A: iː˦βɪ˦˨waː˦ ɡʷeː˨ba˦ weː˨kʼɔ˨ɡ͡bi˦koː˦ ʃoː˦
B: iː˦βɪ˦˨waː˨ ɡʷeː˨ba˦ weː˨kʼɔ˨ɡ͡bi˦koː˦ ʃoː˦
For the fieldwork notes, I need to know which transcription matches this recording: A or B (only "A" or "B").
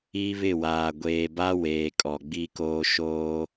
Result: B